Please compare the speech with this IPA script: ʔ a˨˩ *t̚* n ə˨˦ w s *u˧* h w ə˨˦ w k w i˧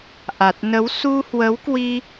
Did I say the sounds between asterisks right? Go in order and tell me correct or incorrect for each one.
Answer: correct, correct

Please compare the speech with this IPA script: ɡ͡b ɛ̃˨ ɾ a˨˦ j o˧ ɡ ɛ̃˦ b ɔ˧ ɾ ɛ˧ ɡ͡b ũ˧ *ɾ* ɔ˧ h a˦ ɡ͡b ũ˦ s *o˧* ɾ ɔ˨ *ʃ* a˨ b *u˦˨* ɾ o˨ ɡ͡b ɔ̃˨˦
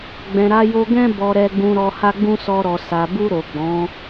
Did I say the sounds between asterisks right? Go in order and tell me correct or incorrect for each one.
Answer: correct, incorrect: ɔ˧, incorrect: s, incorrect: u˧

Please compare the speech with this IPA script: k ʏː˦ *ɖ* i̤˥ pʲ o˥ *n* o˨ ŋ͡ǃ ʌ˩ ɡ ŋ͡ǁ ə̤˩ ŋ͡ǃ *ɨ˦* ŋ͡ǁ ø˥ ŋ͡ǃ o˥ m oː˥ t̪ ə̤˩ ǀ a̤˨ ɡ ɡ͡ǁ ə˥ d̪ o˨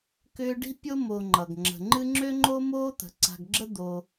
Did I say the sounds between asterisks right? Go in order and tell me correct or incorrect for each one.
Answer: correct, incorrect: m, correct

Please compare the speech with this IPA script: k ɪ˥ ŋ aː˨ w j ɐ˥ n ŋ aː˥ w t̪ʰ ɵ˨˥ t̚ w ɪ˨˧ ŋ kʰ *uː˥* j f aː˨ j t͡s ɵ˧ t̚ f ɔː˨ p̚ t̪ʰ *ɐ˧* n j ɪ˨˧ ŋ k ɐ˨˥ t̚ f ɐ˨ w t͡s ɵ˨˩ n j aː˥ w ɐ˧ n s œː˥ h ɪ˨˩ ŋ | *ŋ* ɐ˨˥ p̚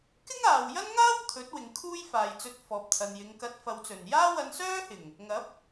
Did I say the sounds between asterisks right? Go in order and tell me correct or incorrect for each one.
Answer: correct, incorrect: ɐ˨, correct

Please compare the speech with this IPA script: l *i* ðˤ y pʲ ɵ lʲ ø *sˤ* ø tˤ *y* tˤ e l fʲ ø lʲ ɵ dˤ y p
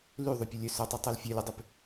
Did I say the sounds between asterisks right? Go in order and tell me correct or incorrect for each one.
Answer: incorrect: y, incorrect: s, correct

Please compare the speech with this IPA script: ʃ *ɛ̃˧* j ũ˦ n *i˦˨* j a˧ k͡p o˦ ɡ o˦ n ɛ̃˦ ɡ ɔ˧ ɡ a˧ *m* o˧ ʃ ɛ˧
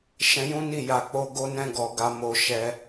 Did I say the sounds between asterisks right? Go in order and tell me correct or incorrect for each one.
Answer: correct, correct, correct

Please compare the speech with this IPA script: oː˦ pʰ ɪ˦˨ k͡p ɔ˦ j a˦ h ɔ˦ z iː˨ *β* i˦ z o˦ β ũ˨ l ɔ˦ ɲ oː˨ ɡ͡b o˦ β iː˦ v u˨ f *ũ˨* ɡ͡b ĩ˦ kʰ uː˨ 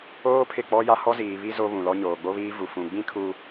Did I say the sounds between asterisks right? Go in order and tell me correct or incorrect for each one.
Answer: correct, correct

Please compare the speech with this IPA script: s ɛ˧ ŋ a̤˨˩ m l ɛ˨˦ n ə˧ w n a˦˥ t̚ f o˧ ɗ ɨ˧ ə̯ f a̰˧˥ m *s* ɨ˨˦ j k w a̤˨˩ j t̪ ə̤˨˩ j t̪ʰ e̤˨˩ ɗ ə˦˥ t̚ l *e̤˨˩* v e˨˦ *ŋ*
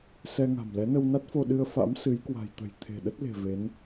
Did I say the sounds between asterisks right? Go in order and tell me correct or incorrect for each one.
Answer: correct, correct, incorrect: n

